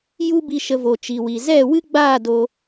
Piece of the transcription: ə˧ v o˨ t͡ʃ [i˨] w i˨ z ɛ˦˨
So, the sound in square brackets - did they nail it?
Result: yes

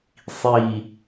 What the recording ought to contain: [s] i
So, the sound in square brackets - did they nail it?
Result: no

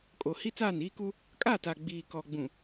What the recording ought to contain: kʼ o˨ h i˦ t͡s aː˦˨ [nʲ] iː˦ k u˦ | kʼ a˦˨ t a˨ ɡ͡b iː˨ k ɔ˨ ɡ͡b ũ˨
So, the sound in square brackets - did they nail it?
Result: no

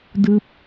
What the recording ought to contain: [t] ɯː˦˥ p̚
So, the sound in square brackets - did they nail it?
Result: no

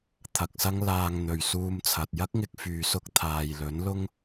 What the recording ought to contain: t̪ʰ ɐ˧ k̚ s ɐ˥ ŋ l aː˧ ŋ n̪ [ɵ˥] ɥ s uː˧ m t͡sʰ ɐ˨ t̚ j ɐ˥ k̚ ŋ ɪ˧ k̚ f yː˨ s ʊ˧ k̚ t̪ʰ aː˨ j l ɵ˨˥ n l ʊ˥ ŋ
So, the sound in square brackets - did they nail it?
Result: no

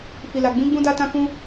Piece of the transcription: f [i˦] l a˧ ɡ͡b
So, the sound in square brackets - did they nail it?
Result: no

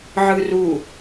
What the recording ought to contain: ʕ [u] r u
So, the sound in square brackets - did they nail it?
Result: no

